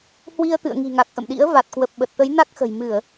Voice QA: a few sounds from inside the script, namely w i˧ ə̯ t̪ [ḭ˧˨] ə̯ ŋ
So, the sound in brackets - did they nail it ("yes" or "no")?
no